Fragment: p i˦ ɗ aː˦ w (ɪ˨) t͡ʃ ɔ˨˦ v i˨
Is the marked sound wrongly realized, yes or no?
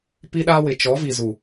no